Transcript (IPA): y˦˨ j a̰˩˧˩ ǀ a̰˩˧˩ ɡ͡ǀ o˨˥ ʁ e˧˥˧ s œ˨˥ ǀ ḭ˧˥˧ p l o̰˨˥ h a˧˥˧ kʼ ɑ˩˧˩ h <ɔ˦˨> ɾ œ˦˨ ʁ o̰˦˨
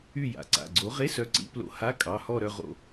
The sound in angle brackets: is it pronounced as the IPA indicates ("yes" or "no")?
yes